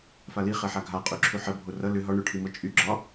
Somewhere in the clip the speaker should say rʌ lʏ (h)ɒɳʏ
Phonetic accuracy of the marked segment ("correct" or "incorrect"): incorrect